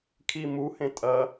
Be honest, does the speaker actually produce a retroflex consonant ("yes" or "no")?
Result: no